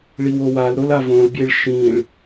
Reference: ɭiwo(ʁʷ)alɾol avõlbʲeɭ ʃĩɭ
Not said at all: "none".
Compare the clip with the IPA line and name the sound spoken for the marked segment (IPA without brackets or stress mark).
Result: w